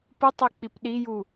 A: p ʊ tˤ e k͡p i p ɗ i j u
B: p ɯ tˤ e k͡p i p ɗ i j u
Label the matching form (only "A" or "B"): B